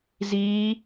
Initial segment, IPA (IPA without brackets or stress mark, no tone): z